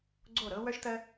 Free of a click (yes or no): no